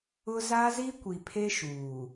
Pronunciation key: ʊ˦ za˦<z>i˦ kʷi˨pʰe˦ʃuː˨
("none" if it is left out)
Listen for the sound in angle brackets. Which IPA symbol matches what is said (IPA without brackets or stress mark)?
z